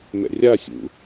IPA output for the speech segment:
mɛ̰rʲasʲṵ

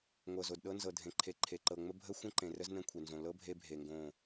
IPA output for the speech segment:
ŋʷɤ˨zo˨dɗɤ˦ nzɤ˨dʱẽ˨ǃʰe˨ ǃʰe˨ǃɤ˨ŋ͡mə˦ bʱə˦ xʷə̃˦ǃẽ˨rə˦z nə̃˦kʷʰe˨nzõ˨ lɤ˦ bʱe˦bʱe˨ŋɡõ˦˨

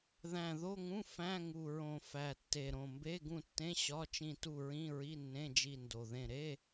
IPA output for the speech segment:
ðæ̃˨˩ðo˧˥˧ŋũ˧˥˧ fæ̃˧˥˧ŋu˨˩ɹõ˨˩ fæ˨˩tːe˨˩ɾõ˨˩ mbe˧˥˧ɡũ˦˨tːẽ˧˥˧ ɕɒ˧˥˧t͡ʃĩ˦˨ tu˦˨ɹĩ˧˥˧ɹi˧˥˧nːẽ˧˥˧ d͡ʒi˦˨ndo˨˩ðẽ˦˨ ɾe˧˥˧

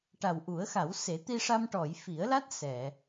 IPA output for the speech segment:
ʈa˨˩wʔu˨˩˦ə̯xa˨˩˦w se˨˩˦t̪i˧ʂa˧mʈɔ˨˩˨j fi˨˩˦ə̯la˦˥t̚ sɛ˨˩˨

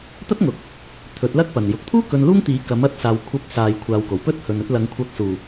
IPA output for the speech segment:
t̪ɐ˥t̚ŋʊ˨k̚ | t̪ʰɵ˨˥t̚lɐ˥k̚ pɐ˨n jʊ˨k̚t̪ʰuː˥ kɵ˧nluː˥ŋt̪iː˨˥ kɐ˨˥m ɐ˥t̚saː˧w kʷʰɐ˧p̚saː˨j kʷʰaː˨˧wko˨˩wpɵ˥t̚ hɵ˨nɵ˧t̚lɐ˨˧ŋ kʷʰɐ˨˥k̚suː˨˩

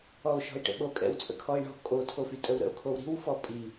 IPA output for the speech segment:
ɔo̯ʃɔ̤e̯ʈə̰ɓo kʼɛ̰wt͡sʼə̰kʰɔe̯ɳɔ̤ kʼo tʰofytʼəwɾə̰o̯ kʰowɾi̤w fɔpʼi

